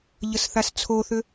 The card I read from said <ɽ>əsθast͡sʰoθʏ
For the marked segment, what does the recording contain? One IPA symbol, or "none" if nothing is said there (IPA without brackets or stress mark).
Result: ʎ